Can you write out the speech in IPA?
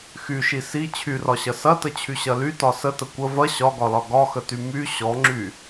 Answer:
x y ʃ i s i t͡ɕʰ y r ɒ ɕ ɐ s ɐ t ə t͡ɕʰ y ɕ ɐ l y t ɒ s ə t ə kʷ ə v ɐ ɕ ɒ ɡ ɒ l ɒ ɡ ɒ x ə t y m y ɕ ɔ ŋ͡ǁ y

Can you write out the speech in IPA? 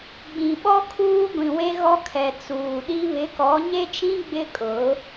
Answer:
ɡ͡b ĩ˨ ɓ ɔ˦ kʰ uː˦ ɡʷ ĩ˨ w e˦ ɣ ɔ˦ kʰ ɛ˨ t͡s uː˨ ɗ i˦ β ɪ˨˦ k ɔ˨˦ ɲ e˦ t͡ʃ ĩ˦ ɡ͡b ɪ˦ kʼ ʊ˨˦

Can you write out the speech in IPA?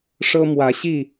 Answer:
ʂ ɤ˦ m w ä˨˦ ɕ i˥˨

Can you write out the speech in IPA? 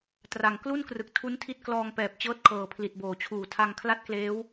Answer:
t r a˩˦ ŋ k l u˥˩ n k r ɯ˨˩ k̚ tʰ u˦˥ n tʰ i˦˥ t̚ k l ɔː˧ ŋ p ɛː˨˩ p̚ t͡ɕ ɤː˥˩ t̚ kʰ ɤː˨˩ pʰ l i˨˩ t̚ b oː˩˦ t͡ɕʰ uː˨˩ tʰ a˧ ŋ kʰ l a˥˩ t̚ k l eː˦˥ w

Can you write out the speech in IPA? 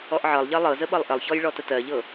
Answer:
ɔ ʔ ʕ ɤ lˠ ʎ ɜ lˠ ɤ z ə ɓ ɤ lˠ ʔ ə lˠ ç ɔ j ɭ ɔ t ə t ɜ ʎ ɤ

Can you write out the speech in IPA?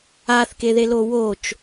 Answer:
aː θ k e ð e l o w o t͡ʃ

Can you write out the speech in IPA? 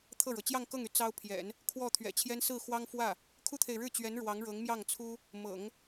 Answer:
t̪ʰ ɤ˥˩ ɻ ɤ˩ t͡ɕ j ɑ˥˧ ŋ k ɤ˥˩ ŋ y˧˥ t͡s ɑ˥ ʊ̯ pʰ j ɛ̰˨˩˦ n | kʰ w ɔ˥˩ t̪ʰ ɥ ɛ̰˨˩ t͡ɕʰ j ɛ˥ n s ɹ̩˥˩ x w ɑ˥ ŋ f w ä˥˩ | kʰ u˥ t̪ʰ e˨ ɪ̯ ɻ ɻ̩˥˩ t͡ɕ ɥ ɛ˧˥ n ɻ w ɑ˧˥ ŋ ɻ ɤ˧˥ ŋ m j ɑ˥˩ ŋ t͡sʰ u˥ | m ɤ̰˨˩˦ ŋ

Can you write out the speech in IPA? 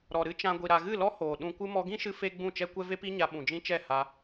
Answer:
ɾ ɔ˨ ɾ ɨ˦ t͡ʃ ã˧ ɡʷ i˨ ɾ a˨ ɣ ɨ˦˨ l ɔ˦ h oː˨ ɗ ũ˧ kʷ ɨ˦ m ɔ˧ ɡ ĩ˦ ʃ ɨ˧ f e˦ ɡ͡b ũ˦˨ t͡ʃ ɛ˦ kʷ ɛ˦ v e˦ p i˦ ɲ a˧ ɓ ũ˨ d͡ʒ ĩ˦ t͡ʃ ɛ˦˨ h a˧

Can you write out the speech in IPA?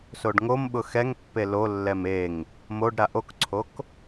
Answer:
s o ɖ ŋ o m ɓ ʊ x ɛ ŋ pː e l o lː ɛ m e ŋ | m o ɖ ɾ a ʔ o k ǀʰ o k

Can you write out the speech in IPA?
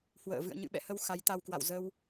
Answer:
h w ə̰ː˧˨ v ɨ̰˧˨ ə̯ ɲ ɨ̰˧˨ ɓ ɛ̰˧˨ h ə˧ w x a˨˦ j t̪ a˧ w k w a̰˧˨ w z ə˧ w

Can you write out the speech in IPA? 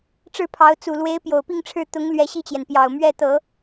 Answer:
ʈ͡ʂ ɻ̩˥˩ pʰ ɑ˧˥ ʊ̯ t͡s u˨˩ l w e˧˥ ɪ̯ p j o˨˩ ʊ̯ p i˥˧ ŋ ʈ͡ʂʰ ɻ̩˥˩ t̪ ʊ˧˥ ŋ l ɥ ɛ˧˥ ɕ i˥˩ t͡ɕ j ɛ˩ n p j ɑ˨˩ ʊ̯ m ɥ ɛ˥˩ t̪ ɤ˨˩˦

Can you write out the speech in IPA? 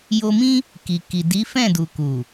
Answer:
j o˧ m ĩ˦ | k i˨ k i˨ d i˨˦ f ɛ̃˦˨ d u˨ k u˨

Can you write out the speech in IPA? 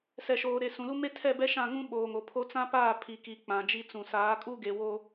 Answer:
s ɛ˨ ʃ oː˨ ɾ e˨ s ũ˨ l u˦ m e˦ tʰ ɛ˦˨ b ɛ˦ ʃ ã˦˨ ŋ ũ˦ ɓ oː˨ ŋ o˨ pʰ o˦ t͡s ã˦ p aː˦˨ pʰ i˨ k i˨ k͡p ã˨ d͡ʒ i˦ t͡s ũ˨ s aː˨˦ kʼ u˦ ɡ e˨ w o˦

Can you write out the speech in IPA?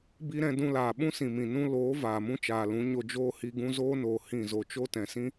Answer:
b i˦ ɾ ɛ̃˧ d ũ˧ l aː˨ ɓ ũ˦ s ĩ˨ m ĩ˨ n ũ˦ l oː˨˦ v aː˨ m ũ˦ t͡ʃ aː˨ l ũ˨˦ ɲ o˧ d͡ʒ oː˦ h i˧ ɡ ũ˧ z oː˦ n oː˨ h ĩ˦˨ z o˧ t͡ʃ o˦ t ɛ̃˨ s ĩ˦

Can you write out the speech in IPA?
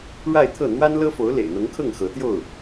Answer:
ɻ a˥˧ ɪ̯ t̪ʰ ɤ˥˩ n̪ w a˥ n l ɤ˥ f o˧˥ ʊ̯ l ḛ˨˩ ɪ̯ n̪ ɤ˧˥ ŋ kʰ ɤ˥˩ ŋ x ɤ˧˥ t̪ j o˥˩ ʊ̯

